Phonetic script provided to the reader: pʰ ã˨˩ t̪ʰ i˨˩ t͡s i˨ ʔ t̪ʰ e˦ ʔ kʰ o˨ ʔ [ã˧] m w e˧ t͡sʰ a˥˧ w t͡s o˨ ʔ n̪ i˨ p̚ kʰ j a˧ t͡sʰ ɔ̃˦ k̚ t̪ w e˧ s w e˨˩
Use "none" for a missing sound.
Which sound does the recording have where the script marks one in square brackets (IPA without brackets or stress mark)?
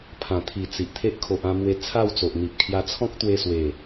ã˧